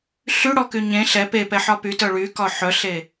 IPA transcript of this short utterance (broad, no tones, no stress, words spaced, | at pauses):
ɬyɽɔky ɲẽ ɬɛ pepɛħɒ pytœ ɭykɒ ħœɬe